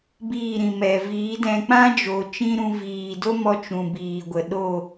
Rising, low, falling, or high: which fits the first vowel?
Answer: falling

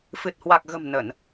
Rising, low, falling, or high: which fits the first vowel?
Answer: low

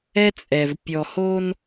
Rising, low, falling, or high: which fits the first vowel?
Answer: high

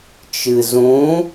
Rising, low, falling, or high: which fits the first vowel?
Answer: low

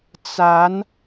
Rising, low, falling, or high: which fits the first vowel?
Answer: rising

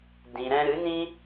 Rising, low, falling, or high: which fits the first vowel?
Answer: low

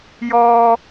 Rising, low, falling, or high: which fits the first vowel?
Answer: low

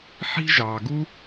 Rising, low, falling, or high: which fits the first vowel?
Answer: high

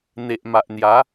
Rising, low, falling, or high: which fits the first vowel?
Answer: low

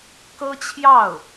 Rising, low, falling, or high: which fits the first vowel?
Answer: high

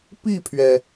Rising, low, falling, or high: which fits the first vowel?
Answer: falling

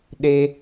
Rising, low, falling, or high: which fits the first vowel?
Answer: high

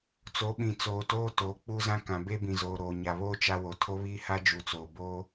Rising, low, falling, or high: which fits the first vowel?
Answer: rising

